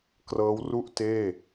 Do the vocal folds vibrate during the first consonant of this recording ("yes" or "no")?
no